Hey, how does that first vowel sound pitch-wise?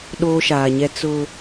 high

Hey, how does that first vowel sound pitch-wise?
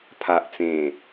low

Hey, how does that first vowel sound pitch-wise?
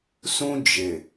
high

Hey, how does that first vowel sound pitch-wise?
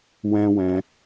high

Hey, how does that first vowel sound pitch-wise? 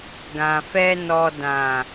low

